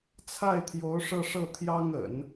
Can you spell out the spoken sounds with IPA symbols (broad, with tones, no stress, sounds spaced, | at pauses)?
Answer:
t͡sʰ a˥˩ ɪ̯ t̪ʰ j o˧˥ ʊ̯ ʂ ɤ˥˧ ʂ ɤ˥˩ t̪ʰ j ɑ˥ ŋ ə̰˨˩˦ n